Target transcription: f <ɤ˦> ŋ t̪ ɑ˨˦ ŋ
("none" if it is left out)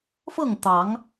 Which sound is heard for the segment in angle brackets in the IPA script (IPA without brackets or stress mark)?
ɤ˥˨